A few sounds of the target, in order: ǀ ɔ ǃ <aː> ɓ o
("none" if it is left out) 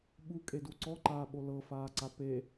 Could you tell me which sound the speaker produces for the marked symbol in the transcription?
aː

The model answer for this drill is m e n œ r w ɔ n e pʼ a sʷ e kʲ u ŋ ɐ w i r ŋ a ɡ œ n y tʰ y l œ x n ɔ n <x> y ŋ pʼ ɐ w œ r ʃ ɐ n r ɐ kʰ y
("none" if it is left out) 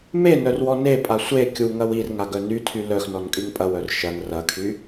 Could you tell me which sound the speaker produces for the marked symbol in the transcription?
kʼ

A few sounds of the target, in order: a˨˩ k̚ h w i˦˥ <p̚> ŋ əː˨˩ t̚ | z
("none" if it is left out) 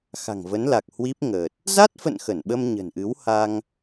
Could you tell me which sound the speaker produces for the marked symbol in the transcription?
p̚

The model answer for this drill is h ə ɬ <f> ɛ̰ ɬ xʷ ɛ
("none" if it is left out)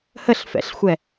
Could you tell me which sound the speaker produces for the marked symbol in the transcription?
f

